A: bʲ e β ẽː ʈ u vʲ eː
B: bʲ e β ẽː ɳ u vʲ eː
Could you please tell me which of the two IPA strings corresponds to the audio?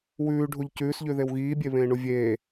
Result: B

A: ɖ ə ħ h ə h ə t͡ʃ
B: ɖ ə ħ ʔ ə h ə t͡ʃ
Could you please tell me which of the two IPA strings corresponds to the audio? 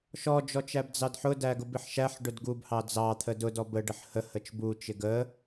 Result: A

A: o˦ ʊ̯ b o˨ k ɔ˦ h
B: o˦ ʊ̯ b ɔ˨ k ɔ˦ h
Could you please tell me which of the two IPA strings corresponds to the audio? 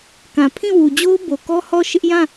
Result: A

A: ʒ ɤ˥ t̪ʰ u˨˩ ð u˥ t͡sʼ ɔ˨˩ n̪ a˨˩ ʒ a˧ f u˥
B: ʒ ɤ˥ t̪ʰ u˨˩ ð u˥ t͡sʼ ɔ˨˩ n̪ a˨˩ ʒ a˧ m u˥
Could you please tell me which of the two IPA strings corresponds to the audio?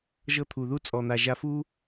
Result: A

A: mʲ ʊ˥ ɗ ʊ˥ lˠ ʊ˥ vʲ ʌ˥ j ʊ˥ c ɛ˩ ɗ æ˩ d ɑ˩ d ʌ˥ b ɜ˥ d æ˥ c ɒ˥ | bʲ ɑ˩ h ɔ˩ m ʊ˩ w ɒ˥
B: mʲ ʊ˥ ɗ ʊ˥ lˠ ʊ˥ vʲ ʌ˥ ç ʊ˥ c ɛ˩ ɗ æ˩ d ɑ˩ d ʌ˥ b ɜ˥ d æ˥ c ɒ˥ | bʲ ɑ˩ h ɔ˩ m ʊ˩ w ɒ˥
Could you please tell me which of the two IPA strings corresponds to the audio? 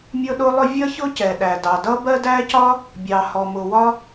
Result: B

